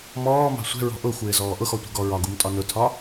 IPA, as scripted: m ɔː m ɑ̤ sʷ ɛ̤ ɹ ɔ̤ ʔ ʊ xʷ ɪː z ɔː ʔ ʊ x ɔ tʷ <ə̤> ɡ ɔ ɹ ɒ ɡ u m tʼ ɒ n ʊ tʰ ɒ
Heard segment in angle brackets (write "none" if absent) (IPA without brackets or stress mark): ə̤